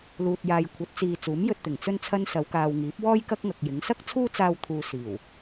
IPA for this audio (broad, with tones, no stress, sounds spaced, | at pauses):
l uː˨ t̚ j aː˨ j kʷʰ ɐ˨˥ t̚ t͡s iː˨ t͡s uː˨˥ m j ɵ˧ t̚ t̪ ɪ˨˩ ŋ t͡s ɵ˧ n t͡sʰ ɐ˧ n s ɐ˨˧ w k aː˨ w ŋ iː˨˥ p̚ w ɔː˥ j k ɐ˥ k̚ ŋ ɐ˨ k̚ j ɪ˨˥ ŋ s ɐ˥ k̚ t͡sʰ uː˥ t͡s aː˧ w t̪ʰ uː˨ s iː˨˩ w